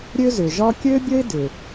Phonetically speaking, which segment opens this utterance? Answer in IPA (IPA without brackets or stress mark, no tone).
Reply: ɾʲ